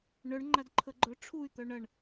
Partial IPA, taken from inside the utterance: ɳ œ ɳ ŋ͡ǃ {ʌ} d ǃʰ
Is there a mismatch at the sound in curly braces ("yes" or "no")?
yes